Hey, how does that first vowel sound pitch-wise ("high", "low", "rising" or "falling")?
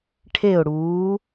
falling